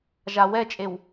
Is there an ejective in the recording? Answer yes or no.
yes